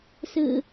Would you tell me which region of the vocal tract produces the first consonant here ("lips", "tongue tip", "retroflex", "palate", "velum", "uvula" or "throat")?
tongue tip